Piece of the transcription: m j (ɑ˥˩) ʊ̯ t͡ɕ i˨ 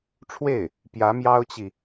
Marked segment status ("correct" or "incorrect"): incorrect